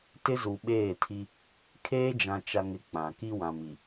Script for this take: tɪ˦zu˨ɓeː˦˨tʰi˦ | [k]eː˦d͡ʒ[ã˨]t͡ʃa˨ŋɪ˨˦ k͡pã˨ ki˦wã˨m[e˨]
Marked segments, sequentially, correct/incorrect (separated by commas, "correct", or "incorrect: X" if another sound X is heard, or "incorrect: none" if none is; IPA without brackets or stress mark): incorrect: kʰ, correct, incorrect: i˨